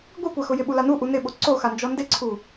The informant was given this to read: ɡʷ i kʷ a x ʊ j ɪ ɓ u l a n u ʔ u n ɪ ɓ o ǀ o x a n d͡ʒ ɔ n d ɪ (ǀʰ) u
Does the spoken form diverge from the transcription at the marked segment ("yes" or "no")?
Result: no